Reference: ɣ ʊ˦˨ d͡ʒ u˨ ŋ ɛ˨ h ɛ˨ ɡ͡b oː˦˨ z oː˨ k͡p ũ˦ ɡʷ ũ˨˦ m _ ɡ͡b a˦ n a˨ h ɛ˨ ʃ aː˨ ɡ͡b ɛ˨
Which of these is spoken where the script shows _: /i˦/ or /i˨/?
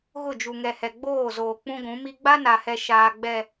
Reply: i˦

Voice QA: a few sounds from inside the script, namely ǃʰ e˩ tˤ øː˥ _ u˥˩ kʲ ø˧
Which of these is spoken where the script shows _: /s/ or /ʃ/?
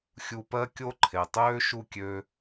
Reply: ʃ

